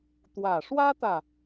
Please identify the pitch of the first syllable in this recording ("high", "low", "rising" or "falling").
low